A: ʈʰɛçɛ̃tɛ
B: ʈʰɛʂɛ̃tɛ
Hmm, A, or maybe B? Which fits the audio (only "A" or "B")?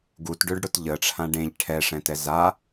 B